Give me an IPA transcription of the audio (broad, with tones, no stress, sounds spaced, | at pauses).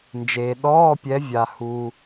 n d͡ʒ eː˨ ɗ ɔː˧˥˧ pʲ ɛ˨˦ vʲ a˨ h u˨